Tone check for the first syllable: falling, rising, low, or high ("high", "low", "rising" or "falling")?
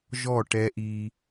falling